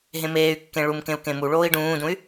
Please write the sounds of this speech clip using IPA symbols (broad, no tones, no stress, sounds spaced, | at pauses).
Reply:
ɦ ẽ m eː y̯ kː ẽ ɭ u m k ẽ u̯ k ẽ m u ɭ oː i̯ ɖ ũː d ũ y̯